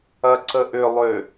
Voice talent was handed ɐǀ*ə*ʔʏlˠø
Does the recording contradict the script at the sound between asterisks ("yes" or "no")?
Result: no